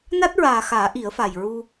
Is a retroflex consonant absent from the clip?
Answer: yes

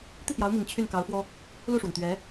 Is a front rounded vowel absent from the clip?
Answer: no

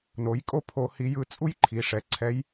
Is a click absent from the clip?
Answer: no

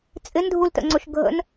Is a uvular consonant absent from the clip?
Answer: yes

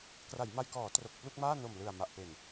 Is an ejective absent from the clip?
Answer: yes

